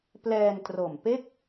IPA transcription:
p l ɛː˧ n t r o˨˩ m p e˥˩ k̚

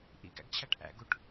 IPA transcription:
ʔ ḭ ɡ æ̰ ɡ t͡ɕʰ æ ʈ ʔ æ̰ ɡ u ʈ

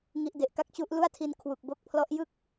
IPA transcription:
ŋ i˦˥ ʔ d e˨˩ ʔ k a˦˥ k̚ t͡ɕ u˦˥ ʔ l u˥˩ a̯ tʰ i˧ n kʰ w u˨˩ k̚ b o˦˥ k̚ pʰ l ɔ˦˥ ʔ j ɯ˥˩ k̚

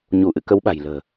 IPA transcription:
ɲ u˧˩ ʔ ɨ̰˧˨ k ə˨˦ w ɓ a̤˨˩ j l ə̤ː˨˩

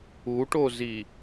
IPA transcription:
u ʈ o z i

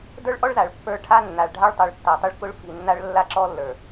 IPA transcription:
d ə˞˦ ɭ ʔ ɔ˦ ɭ z a˨ ɭ pː ə˞˦ ʈʰ a˦ nː a˨ ɭ ɖʱ a˦ ɭ tˤ ə˞˨ ɭ tː a˨ tˤ ʊ˦ ɭ k ʊ˦ ɭ f i˨ nː a˦ ɭ lː a˦ ǁ ɔ˦ lː ə˞˨

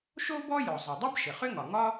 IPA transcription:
ʃ o˥ b ɔ˥ j ɔ˩ zˤ ɘ˩ dˤ ɘ˥ b ʃ ɘ˩ χ ʏ˥ ŋ ɒ˩ ŋ ɒ˥

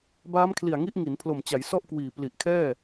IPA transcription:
b aː˦˥ m kʰ l i˨˩ a̯ ŋ i˦˥ ʔ ŋ i˩˦ n pʰ l o˨˩ m t͡ɕ a˩˦ j s ɔ˥˩ ʔ k w iː˨˩ p l i˨˩ ʔ kʰ ɛː˥˩

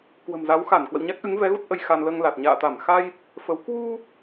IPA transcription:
k w ə̤˨˩ m z a˨˦ w x a˧˩ n k w ə̰˧˨ w ɲ a˦˥ k̚ ʔ ɨ˨˦ ŋ v ɛ˨˦ ɣ u˦˥ t̚ ʔ ə˧ j x a˧ n l əː˧ ŋ l a˨˩ t̚ ɲ a̰ː˧˨ t̪ a˧˩ m x a˧ j | f ə˨˦ w k w u˧

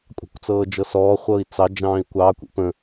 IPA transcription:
kʷʼ ɑ̤ kʷ t͡s ɤː d͡ʒ ɤ s ɔː χʷ ɤː i̯ t͡s ɑ d͡ʒ ɑ̃ː i̯ kʷ ɑ kʷ ḭ p ə̃

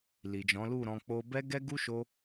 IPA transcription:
l i˨ d͡ʒ ɔ̃˨˦ l u˦˨ ɾ ɔ̃˧ k͡p o˦ b ɛ˦ ɡ ɛ˦ ɡ u˦ ʃ o˧

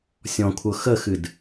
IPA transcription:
sʲ ɔ̃ kʷʰ ɤ x ə x ɨ d

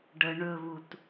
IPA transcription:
ɖ ə ɳ ɵ β u t

